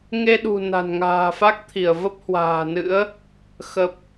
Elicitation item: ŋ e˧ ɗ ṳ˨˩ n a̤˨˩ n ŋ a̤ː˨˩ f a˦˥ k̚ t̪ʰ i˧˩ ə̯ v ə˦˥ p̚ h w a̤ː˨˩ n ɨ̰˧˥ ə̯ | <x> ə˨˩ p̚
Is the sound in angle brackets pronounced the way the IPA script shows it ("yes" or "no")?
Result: yes